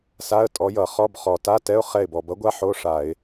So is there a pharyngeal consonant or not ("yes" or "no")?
yes